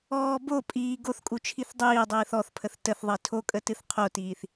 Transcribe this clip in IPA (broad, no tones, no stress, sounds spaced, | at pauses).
ɔː b o pʼ iː ɡ o θ kʼ u t͡ʃʰ i θ dˤ iː dˤ iː θ ɔ θ pʰ ə θ t ə θ ðˤ i tʰ o kʼ ə t ɨ θ qʰ o t iː θ